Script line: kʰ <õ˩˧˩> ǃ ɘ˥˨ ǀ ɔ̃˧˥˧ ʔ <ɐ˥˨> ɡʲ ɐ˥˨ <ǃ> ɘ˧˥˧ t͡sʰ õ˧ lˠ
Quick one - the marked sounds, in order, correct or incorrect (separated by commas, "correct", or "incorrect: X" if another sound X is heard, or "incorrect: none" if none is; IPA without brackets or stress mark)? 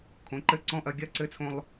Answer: correct, incorrect: ɐ˧, incorrect: ǀ